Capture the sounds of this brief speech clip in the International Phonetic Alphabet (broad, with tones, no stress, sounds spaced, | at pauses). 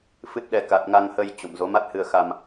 f ɨ˦˥ t̚ ɗ ɛ˧ k a˨˩ t̚ ŋ a˧ ŋ h ə˧ j t͡ɕ o̰˧˨ m z o˨˦ m a˦˥ t̚ h ɨ˧ ə̯ x a˧ m